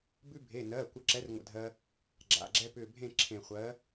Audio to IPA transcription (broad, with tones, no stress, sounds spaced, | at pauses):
b ʉ˧ bʱ e˩˧˩ n ɜː˩˧˩ kʷ ə˨˥ ǁ ɛ˨˥ r ŋʷ ə̰˧˩ dʱ ɜ˧ | ɡ͡ǁ a̰˩˧˩ ɡ͡ǁ ɛ˧ p ʏː˧˩ bʱ ẽ˥˨ ǁʰ ẽ˧˩ χʷ ɜ˨˥